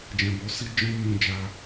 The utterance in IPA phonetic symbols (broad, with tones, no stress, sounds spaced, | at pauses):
d͡ʒ ɛ̃˧ b o˦ s i˦ d͡ʒ ɔ̃˦ m ũ˧ d͡ʒ a˧